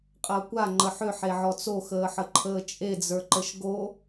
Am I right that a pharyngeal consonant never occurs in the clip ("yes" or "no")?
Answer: no